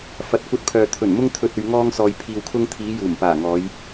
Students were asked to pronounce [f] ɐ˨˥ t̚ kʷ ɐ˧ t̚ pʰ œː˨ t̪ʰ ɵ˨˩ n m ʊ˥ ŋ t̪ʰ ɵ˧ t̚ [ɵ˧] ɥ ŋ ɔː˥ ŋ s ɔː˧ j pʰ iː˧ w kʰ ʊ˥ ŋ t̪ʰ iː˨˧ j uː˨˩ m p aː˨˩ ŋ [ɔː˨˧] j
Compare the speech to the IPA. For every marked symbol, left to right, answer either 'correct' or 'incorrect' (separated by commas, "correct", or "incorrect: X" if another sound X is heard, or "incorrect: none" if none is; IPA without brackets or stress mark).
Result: correct, correct, correct